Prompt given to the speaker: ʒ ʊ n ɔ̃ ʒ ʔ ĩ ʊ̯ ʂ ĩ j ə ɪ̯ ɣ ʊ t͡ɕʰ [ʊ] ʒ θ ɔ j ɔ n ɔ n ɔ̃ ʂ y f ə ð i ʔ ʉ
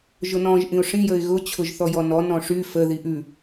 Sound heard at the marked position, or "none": ʊ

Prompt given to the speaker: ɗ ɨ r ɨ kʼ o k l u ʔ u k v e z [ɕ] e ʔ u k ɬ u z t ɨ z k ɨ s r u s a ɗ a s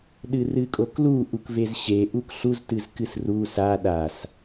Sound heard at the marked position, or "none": ɕ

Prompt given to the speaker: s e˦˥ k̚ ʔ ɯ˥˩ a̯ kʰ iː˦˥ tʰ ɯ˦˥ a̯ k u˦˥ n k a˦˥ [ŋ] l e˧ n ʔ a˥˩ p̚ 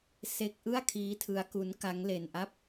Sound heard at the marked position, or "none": ŋ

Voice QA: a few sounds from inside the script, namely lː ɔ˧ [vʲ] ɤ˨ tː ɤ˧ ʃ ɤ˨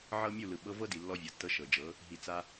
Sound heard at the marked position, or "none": vʲ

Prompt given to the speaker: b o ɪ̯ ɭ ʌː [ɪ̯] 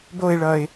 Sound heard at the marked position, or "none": ɪ̯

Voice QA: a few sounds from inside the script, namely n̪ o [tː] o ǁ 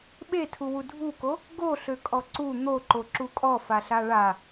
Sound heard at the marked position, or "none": ǃ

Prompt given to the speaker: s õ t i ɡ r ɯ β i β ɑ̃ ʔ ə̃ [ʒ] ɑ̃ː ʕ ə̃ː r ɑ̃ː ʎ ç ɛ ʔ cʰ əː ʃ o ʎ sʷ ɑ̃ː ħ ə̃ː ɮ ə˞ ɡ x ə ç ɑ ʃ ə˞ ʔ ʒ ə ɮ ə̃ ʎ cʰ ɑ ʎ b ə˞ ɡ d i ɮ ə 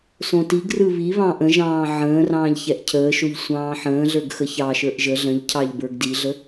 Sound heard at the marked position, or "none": ʒ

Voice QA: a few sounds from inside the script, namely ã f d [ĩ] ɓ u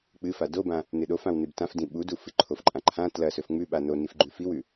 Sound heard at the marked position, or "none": ĩ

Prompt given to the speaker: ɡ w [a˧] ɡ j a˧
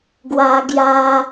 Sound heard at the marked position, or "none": a˧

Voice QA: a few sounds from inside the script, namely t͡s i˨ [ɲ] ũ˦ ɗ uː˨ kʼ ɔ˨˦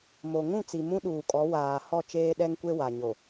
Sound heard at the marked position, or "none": m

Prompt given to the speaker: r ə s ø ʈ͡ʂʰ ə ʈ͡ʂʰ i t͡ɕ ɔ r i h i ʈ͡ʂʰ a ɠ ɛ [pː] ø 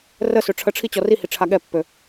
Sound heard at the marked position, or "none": pː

